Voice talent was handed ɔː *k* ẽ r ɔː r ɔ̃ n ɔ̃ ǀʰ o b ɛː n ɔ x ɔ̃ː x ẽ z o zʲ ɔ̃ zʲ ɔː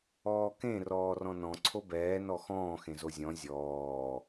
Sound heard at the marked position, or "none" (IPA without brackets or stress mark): k